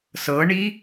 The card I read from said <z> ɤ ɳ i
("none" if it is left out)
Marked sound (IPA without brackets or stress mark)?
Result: s